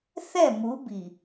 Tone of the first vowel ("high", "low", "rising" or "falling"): falling